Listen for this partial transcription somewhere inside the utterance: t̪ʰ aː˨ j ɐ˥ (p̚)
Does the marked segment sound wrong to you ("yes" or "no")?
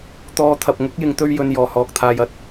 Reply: yes